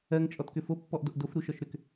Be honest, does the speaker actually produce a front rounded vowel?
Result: yes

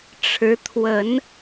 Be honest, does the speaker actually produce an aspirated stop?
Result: yes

